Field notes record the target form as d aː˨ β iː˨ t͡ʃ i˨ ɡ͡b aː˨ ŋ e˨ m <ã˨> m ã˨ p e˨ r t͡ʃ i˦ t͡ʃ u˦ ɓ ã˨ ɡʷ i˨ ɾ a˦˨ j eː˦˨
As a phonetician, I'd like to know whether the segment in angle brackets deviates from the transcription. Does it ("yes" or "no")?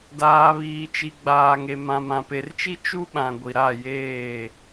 no